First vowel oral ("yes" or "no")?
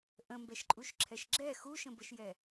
no